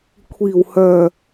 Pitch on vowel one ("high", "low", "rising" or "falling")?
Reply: low